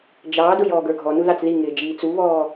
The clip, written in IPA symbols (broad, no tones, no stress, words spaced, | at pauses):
d͡ʒɑːdʊj ɔːɡə˞ɡʱɔnu ðɑt͡sðiŋɪː d͡ʒiːt͡suβɔː